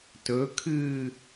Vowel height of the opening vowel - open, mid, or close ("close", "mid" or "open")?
mid